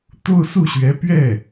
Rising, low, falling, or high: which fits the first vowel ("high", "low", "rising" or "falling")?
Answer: falling